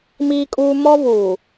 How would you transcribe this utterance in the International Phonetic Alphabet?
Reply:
m iː˦ kʼ uː˦ m ɔ˦ v uː˨

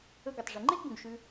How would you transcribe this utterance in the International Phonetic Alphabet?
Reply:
ɵ˧ ɡ ɵ˩ tˤ ʐ i˩ ŋ͡ǃ e˥ ɡ b ũ˩ ɡ ʃ ʉ˧

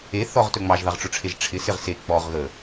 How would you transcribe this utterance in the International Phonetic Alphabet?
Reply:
e θ ɔ ʁ t ɵ ŋ͡m ɑ ʒ ð ɑ ʁ ʈ͡ʂ ʊ ʈ͡ʂʰ e ʒ ʈ͡ʂʰ ɪ s ɪ ʁ s e k͡p ɔ ʁ ɣ ə

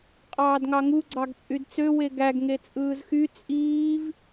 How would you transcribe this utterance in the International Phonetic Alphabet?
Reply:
qʼ ɑː d ŋ ɑ ŋ u ɡ͡ǀ ɑ ɡ t͡sʼ y d t͡s ø w e ɡ æ ɡ ŋ e t͡sʼ ɯː z x y t͡sʼ iː v

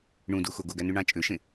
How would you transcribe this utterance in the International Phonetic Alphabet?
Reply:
ɳ ũ d u x o ɡ o ɡ æ n y ɳ ɑ̃ t͡ʃʼ ø ʃ ẽ

